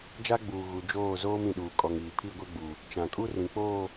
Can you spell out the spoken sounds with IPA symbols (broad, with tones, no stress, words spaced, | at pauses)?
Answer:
d͡ʒa˦ɡ͡buː˨ ɣu˨d͡ʒoː˦˨zoː˦m ĩ˨ɗuː˨ kʼɔ˨ŋiː˨ pʰi˦˨ɡʷe˦ɡ͡bu˨ | t͡ʃã˨kʼu˦ rĩ˨k͡poː˦˨